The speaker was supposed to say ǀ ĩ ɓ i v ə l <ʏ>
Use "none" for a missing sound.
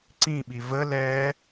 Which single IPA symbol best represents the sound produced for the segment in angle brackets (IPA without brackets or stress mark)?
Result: ɛ